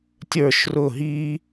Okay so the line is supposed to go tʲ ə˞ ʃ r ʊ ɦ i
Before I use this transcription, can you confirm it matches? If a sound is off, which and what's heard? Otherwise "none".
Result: none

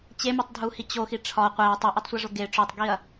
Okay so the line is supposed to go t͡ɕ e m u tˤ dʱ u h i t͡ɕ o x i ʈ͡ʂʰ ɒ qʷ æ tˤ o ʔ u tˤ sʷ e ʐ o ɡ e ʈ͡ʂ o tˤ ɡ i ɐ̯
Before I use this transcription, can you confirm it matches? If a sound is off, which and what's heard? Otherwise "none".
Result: none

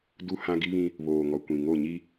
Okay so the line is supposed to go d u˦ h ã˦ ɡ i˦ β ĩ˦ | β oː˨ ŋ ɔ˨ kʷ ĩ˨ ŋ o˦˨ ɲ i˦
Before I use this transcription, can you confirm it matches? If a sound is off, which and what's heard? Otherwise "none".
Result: none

